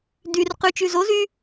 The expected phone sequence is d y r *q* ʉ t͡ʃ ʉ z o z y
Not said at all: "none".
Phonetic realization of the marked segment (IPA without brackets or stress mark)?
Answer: q